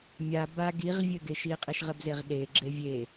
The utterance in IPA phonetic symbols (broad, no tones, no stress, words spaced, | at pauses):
mʲa ba ɡiʁvʲɘɡeʃ iqʼiʃʁɘbzeʁ ɗe ɡ͡ǁevʲe